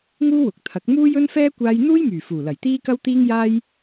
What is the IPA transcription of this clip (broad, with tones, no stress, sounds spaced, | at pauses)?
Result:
ŋ uː˥ w ʊ˨˥ k̚ t̪ʰ ɐ˨˥ k̚ m uː˥ j ɵ˥ n f ɛː˥ kʷ aː˥ j n̪ uː˥ j m yː˨˩ f uː˨˩ l ɐ˨˩ j t̪ iː˥ k ɐ˥ w t̪ iː˥ ŋ j aː˥ j